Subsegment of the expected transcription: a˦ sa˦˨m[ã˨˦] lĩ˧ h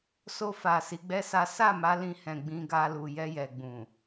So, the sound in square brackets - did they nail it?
no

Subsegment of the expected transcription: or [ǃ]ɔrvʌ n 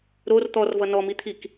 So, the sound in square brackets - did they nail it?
no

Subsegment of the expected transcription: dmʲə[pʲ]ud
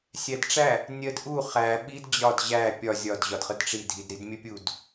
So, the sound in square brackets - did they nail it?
yes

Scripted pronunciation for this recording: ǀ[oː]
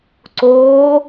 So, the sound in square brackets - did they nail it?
yes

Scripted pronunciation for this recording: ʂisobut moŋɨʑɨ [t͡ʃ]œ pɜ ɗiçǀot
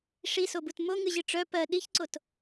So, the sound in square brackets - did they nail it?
no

